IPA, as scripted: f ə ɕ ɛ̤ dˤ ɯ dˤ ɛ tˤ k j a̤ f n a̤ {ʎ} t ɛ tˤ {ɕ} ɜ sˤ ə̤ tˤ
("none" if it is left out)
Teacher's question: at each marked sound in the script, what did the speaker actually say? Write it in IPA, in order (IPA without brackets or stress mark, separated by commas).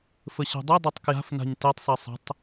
ɲ, sˤ